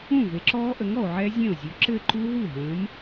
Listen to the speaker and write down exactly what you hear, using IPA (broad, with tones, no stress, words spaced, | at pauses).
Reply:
ũ˥˩ ve˨˥ǁɔː˦˥ʔə˨˥ŋɔ˨o̯ ʕɛ˦˥zʲẽ˥˩o̯ zʲʉ˨˥ǁɘ˥˧ǃu˦˥ ɦu˥˩ɦə̃ː˨˥m